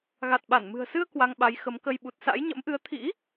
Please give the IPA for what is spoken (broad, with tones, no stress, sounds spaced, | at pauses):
ɣ a˨˩ t̚ ɓ a˧˩ n m ɨ̤˨˩ ə̯ s ɨ˧ ə̯ k w a˧ ŋ ɓ a˨˦ j x ə˨˦ m k ə˧ j ɓ u˨˩ t̚ s a̰˧˥ j ɲ ə̰˧˥ m ʔ ɨ˨˦ ə̯ t̪ʰ ḭ˧˥